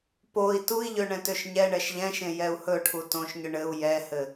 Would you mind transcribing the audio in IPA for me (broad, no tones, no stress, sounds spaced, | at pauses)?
p o i̯ t u i̯ ʎ ø ɳ ɛ̃ t ø ʃ ɲ ɛ ɳ ɛ ʃ ʎ ɛ̃ ʃ ẽ j ɛ u̯ h ɵ ʈʰ u t õ ʃ ɲ ʏ ɳ ɘ u̯ j ɛ h ɘ